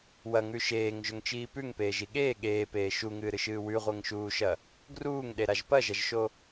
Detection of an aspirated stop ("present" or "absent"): absent